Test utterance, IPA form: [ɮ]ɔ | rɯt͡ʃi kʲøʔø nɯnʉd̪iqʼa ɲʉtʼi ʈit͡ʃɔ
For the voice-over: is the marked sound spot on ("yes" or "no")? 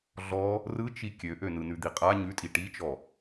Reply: yes